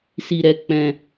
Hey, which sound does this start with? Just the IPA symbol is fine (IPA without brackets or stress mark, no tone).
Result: s